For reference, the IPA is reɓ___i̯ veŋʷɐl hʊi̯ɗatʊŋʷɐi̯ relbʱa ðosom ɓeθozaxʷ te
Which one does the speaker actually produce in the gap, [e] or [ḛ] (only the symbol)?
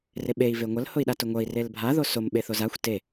e